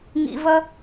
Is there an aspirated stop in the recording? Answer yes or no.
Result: no